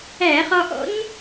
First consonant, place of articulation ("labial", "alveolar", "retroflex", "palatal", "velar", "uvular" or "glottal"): uvular